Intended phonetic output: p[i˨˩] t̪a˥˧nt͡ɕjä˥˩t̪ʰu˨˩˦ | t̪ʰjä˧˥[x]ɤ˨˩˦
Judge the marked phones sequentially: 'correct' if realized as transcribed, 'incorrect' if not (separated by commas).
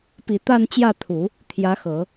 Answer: correct, correct